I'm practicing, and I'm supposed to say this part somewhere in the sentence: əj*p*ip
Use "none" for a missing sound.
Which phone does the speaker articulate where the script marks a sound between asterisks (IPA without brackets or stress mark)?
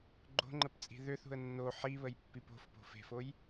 pː